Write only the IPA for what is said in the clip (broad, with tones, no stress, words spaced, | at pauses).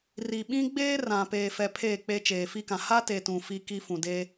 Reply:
ri˨ɓĩ˦ɡ͡beː˦ rã˨ peː˨fɛ˨ pʰeː˦˨k͡pe˦ t͡ʃeː˨fi˦kã˨ ha˦te˨ tũ˨fi˦ ki˦fũ˨de˦